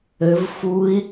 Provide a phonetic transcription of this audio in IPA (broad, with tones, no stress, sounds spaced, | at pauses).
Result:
ɘ˩˧ v f u˧˥ i̯